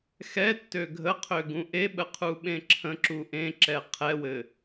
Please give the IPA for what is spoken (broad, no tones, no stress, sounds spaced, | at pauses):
x ɛ tː ø ɡʱ ə qʰ ø ɡ ũ ʔ e ɓ ə qʰ u ɓ ẽ ǁʰ ə̃ ǁ u ʔ ẽ ǁ ɛ qʰ ɛ w ɘ